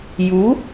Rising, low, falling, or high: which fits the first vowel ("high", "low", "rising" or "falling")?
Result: rising